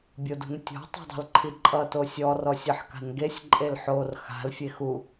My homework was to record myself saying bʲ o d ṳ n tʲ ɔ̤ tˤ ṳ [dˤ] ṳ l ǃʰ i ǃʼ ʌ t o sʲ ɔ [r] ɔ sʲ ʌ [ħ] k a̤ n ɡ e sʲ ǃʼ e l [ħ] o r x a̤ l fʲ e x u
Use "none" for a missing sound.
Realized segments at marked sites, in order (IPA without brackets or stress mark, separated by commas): dˤ, r, ħ, ħ